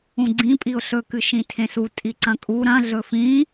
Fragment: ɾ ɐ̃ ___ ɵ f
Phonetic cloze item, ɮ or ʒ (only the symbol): ɮ